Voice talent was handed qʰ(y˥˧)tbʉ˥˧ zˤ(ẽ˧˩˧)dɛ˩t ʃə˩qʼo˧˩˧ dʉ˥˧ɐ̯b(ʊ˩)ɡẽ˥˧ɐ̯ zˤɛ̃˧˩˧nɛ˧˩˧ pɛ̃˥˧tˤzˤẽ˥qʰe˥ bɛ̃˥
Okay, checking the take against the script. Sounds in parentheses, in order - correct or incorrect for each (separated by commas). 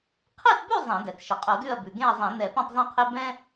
incorrect, correct, incorrect